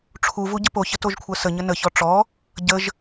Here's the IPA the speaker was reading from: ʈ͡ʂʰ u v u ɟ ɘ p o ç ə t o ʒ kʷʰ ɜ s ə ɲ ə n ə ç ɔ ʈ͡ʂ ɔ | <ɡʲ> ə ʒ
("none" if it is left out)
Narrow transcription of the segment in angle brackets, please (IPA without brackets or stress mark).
ɟ